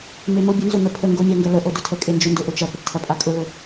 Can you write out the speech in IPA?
m e m o bʲ ə n z ʊ n̪ ə pʰ ə ŋ ɡ o mʲ a ŋ ɡ ɐ l ə ʔ o d ʊ tʰ ə kʼ e n d͡ʒ ʊ n d ʊ ʔ ʊ t͡ʃ ɐ p ə ʈ tʰ ɐ pʼ a kʼ ʊ l ʊ

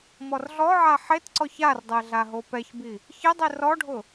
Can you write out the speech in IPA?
m ɔ r ɮ ɔ ʕ a ħ e t ǀ ɔ ç a r dˤ ɛ ɮ a ɦ o p ɛ ç b i | ç ɪ dˤ i r ɔ ɖʱ ʊ

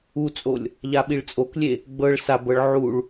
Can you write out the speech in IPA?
u t͡sʼ o lʲ | ʎ a ɓ i ɭ t͡sʼ o k lʲ e | ɡ͡b ɤ ɭ s a b ɤ ɭ ʕ u ɭ

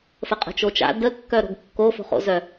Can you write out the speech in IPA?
f ə qʼ ə̤ t͡ʃ o t͡ʃ a̰ d ə kː œ ɾ o̤ ɡ kː o f o̤ χ o̰ z œ

